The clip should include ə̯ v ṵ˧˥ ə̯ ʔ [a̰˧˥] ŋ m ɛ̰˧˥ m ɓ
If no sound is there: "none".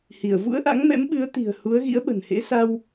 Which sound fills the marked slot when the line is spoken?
a̰˧˥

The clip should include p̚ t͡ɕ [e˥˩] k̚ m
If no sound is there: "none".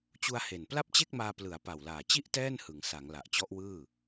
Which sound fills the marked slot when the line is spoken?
e˥˩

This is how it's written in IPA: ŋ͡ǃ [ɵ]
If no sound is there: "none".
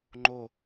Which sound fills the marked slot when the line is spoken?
o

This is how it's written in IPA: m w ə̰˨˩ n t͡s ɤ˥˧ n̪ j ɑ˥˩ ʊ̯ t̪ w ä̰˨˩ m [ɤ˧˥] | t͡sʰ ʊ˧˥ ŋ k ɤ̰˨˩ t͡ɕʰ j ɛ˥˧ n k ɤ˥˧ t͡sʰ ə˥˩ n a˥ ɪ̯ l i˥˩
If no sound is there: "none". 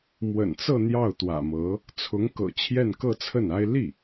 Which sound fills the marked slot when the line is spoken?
ɤ˧˥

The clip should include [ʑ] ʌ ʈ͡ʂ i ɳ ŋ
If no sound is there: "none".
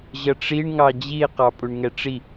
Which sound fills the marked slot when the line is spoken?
ʑ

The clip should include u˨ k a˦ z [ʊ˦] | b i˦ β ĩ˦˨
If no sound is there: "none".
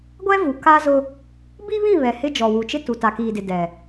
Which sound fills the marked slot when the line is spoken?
ʊ˦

